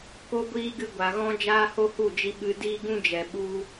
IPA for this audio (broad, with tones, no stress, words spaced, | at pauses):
ko˦ɡʷiː˦ɡɨ˧ ɡʷa˨ɣɔ̃˦ d͡ʒaː˦ho˦hu˦˨d͡ʒi˧ ɓɨ˧ diː˦ɡũ˦d͡ʒɛ˨ɓu˧